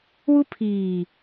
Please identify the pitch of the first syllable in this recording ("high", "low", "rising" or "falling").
high